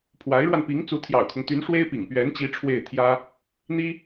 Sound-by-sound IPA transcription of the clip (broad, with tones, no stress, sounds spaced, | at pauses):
pʰ w a˧˥ ɪ̯ ɻ w a˧ n p i˧˥ ŋ t͡s u˧˥ t̪ʰ j ɑ̰˨˩ ʊ̯ kʰ ʊ˦ ŋ t̪ y˧˥ n ʂ w e˥ ɪ̯ p ḭ˨˩ ŋ p ɥ ɛ˧˥ n t͡ɕ i˧˥ ʈ͡ʂʰ w e˥˩ ɪ̯ t̪ʰ j ä˥ | n̪ i˥